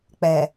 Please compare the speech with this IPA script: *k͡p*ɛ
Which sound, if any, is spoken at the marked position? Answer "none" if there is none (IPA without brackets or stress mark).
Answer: k͡p